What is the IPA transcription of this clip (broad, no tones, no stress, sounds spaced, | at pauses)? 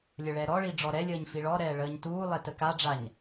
lʲ ə ɭ ɛ ɾ ɔ ɭ i ɖ͡ʐ ɔ ɾ ɛ lʲ əː ɲ f i ɭ ɔ ɾ ɛː ɭ əː ɲ t uː lˠ ɛ t ə k a ɖ͡ʐ a ɲ